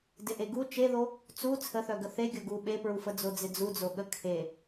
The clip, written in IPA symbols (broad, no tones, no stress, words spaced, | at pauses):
dɪʔeɡu t͡ʃeðo | t͡su t͡sʰəθœ ɡəθe ɡʲoɡu ɓepɹufə d͡zod͡zɪd͡zud͡zo ɠəkʰe